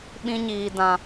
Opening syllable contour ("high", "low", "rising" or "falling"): high